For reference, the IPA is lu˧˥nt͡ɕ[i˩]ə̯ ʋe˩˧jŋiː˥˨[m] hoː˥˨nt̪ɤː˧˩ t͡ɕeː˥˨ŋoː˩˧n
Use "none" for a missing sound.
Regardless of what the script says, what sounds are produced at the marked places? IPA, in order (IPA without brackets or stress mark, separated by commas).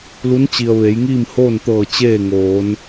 i˩, m